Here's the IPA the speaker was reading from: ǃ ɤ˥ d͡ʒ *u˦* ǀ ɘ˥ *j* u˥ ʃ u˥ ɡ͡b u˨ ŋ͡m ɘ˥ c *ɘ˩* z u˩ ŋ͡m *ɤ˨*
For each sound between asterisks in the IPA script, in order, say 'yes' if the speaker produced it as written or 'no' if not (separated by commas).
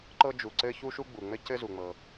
no, no, no, yes